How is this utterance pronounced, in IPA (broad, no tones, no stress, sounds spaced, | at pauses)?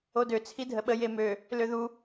o d ø t͡sʰ i dʱ ə ɓ ə j e m ø | l ø ð u